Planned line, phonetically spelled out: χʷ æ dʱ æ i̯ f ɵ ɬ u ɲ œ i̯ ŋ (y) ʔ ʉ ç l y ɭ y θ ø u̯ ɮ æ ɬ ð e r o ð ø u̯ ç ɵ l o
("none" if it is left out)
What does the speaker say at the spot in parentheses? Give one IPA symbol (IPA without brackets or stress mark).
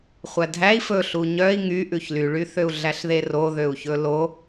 y